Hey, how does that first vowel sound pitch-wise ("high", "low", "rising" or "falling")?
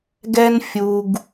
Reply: high